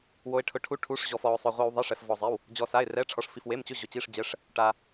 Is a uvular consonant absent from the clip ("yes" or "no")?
no